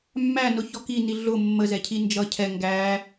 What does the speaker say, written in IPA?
mː æ n ʊ ç ɔ k i n i ɮ ʊ mː ə z ɛ cʰ i n d͡ʒ ʌ cʰ ɛ ŋ ɡ æ

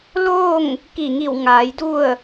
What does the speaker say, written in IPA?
l oː˥˨ ŋ | k i˧˩ ŋ i˧˩ w ŋ aː˩˧ j d u˥˨ ə̯

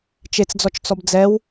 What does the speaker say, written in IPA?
t͡ʃ e t͡s d͡z ɔ t͡ʃ t͡s ɔ b d͡z ɛ w

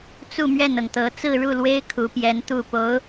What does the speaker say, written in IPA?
t͡s u˥˧ m ɥ ɛ˥˩ n ɤ˩ ŋ t̪ ɤ˧˥ t͡s ɹ̩˥˧ ɻ u˥˩ l w e˥ ɪ̯ kʰ u˧˥ p j ɛ˧˥ n t̪ u˥˩ p o˧˥ ʊ̯

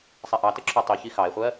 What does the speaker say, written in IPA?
sˤ ɛ ʔ ɑ t ə ǁʰ ɔ tˤ i ç i x ɑ e̯ χʷ ɜ

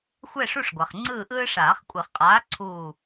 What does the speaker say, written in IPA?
xʷ ɛ˦˨ ʂ u˦˨ ʂ ɡʷ a˩ χ ŋ͡ǀ ɯː˦˨ ʔ ɯː˦ ʂ aː˨˩˦ χ kʷʼ e˨˩˦ χ qʼ aː˨˥ ǀʰ uː˦˨

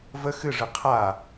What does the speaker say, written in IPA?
v ə x ɨ ʐ ɨ qʰ a

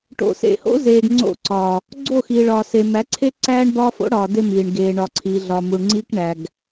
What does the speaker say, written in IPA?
ʈ o̰˨ s ḛ˨ h o̰˦ z eː˨ ɡ ŋ͡ǀ o̰˦˨ ǀ ɒ˨ | ɡ͡ǀ o˦˨ x i˨ ɭ ɒ˨ s e˨ m æ˨˦ ǀʰ e˦ ǀ æː˦ ɳ b ɒː˦ f o̰˦ ɽ ɒː˨ d e˦ m iː˨ ɳ ɡ eː˨ ɳ ɒ˨ ǀʰ iː˨ ɮ ɒ˨ m u˨ ɳ ŋ͡ǀ iː˦ k ɳ æ˨ ɡ

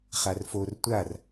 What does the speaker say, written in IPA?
χ a r f o r tʷ a r

